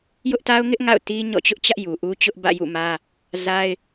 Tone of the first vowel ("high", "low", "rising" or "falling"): high